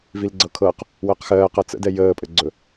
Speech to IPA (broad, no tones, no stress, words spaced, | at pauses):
vilɡ͡ǀɤkʰɤq | wɜqxɜːqɤ t͡sə̰dɛ jəːpʼɘɡ͡ǀɵ